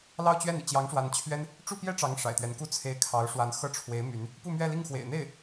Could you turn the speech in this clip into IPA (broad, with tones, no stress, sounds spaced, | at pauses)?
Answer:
l ɑ˥˧ ʊ̯ t͡ɕ ɥ ɛ˥˩ n ḭ˨˩ t͡ɕ j ɑ˧˥ ŋ ʂ w a˧˥ n t͡ɕʰ ɥ ɛ˥ n | ʈ͡ʂ u˥˩ p j ɛ˥ ʈ͡ʂ ɑ˧˥ ŋ ʂ a̰˨˩ ɪ̯ t̪ ɥ ɛ˧˥ n k u˥ t͡sʰ e˧˥ ɪ̯ kʰ ɑ˧˥ ʊ̯ ʂ w a˧˥ n x ɤ˥˩ ʈ͡ʂʰ w e˧˥ ɪ̯ m y˧˥ n | p u˥˧ m ɥ ɛ˥˧ l i˥˩ ŋ x w ḛ˨˩ ɪ̯ n̪ e˥˩ ɪ̯